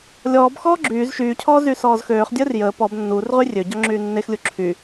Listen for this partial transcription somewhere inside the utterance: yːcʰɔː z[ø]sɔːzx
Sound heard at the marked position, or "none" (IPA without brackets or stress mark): y